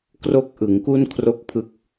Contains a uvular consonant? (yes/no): no